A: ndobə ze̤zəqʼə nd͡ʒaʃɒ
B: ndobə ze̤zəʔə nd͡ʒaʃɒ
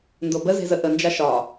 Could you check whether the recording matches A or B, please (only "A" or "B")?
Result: B